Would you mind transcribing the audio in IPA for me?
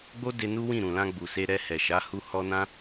ɡ͡b o˦ d e˧ n u˦ w ĩ˦˨ ɾ ũ˨ l ã˧ ɡ͡b u˨ s e˧ ɾ ɛ˧ h ɛ˨ ʃ a˨˦ h u˧ h ɔ˦ n ã˦

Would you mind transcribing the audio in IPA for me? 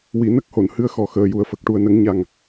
w i˨˩˦ n ə˦˥ k̚ h o˨˩˨ n h ɨ˧˥ ə̯ x ɔ˨˩ x əː˨˩ j u˨˩ ə̯ f ə˨˩ k̚ ʈ u˨˩ ə̯ n ə˨˩˦ ŋ ɲ a˨˩ ŋ

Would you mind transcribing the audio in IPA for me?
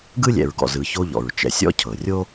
ɡ ɯ˥ lʲ ɛ̰˨ ɹ ɡ ɔ̰˨ z ɯ˨ ç o˦ ʎ ɔ̰˩ ɹ t͡ʃ ɛ̰˨ sʲ ɔ̰˦ cʰ ɤ˩ rʲ o˥

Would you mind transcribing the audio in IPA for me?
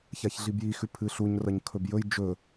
ç a ç ɮ i b j i x ʉ pʰ ɨ ɬ u ɲ r ɐ ɲ kʰ ɵ b j ɵ j d͡ʒ ɵ

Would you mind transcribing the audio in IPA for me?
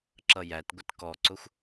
ǁ ʌ j æ t ɡʷ ɪ t k ɔ ǀ ʊ xʷ

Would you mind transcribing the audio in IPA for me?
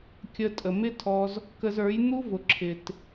kʲ ə˧ tʼ ə˨ m ɪ˦ tʰ ɔ˧ z | k ə˧ z ə˞˨˦ j n̪ u˦ v ʊ˨ ǁʰ ɪ˨ t

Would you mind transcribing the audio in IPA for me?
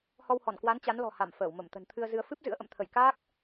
h ɔ˧ w h ɔ˧˩ n k w a˨˦ n t͡ɕ a˨˦ n l ɔ̤˨˩ h a˧˩ m f əː˧˩ w m ə˧˩ m t̪ ə̤˨˩ n t̪ʰ ɨ˧ ə̯ z ɨ˧ ə̯ f ɨ˦˥ p̚ z ɨ̰˧˥ ə̯ ʔ ə̰˧˨ m t̪ʰ ə˧˩ j k aː˦˥ k̚

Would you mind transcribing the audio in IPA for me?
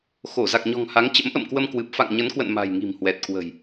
x o˧˩ z a˨˩ k̚ ɲ ɔ̤˨˩ ŋ h a˨˦ ŋ t͡ɕ ə̰˧˥ m ʔ ə̰˧˨ m k w ə˧ m k w ɨ˨˩ p̚ f a̰˧˨ ŋ ɲ ə˨˦ n k w ə̰˧˨ n m a̤˨˩ j ŋ i̤˨˩ m h w ɛ˨˩ t̚ k w ə̤˨˩ j

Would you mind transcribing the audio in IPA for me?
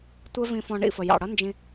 tʷ ɛ˦ v ĩ˧ f ɔ̃˧ ɳ ḭ˦˨ f ə˨ j ɑ̰˨ ɽ ʌ˦ n d͡ʒ ĩ˧

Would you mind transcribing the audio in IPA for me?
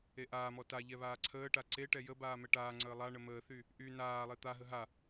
e ʔ aː m ɔ t a ʎ ɛ β aː ǀʰ əː ʈ a ǀ e ʈ ɛ j ə b aː m ɛ ʈ aː ŋ͡ǀ əː lˠ a ɳ ə m əː θ y | ʔ y n aː lˠ e t̪ a ɦ ə ɦ a

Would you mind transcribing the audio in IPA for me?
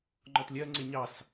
ŋ͡ǃ ɔ t lʲ ɜ ŋ͡ǀ ɪ ɲ ɑ s

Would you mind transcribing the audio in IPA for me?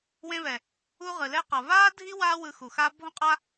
w ẽ˧ β ɛ˨ | u˧ ʁ ɯ˨ l ɛ˧ q ʌ˨ β aː˦ dʱ i˦ w aː˦ w ɯ˧ x u˨ x aː˦ bʱ õ˦ qʼ a˦

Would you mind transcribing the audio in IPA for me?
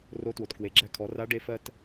r o˧˥ t w o˩ t k w e˩˧ ɡ͡ǁ æ˧ kʰ ɔ˩˧ r a˧˥ ɖ e˧˥ f ɜ˥ t

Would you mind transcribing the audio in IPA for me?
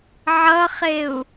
ʕ ʌ χ e u̯

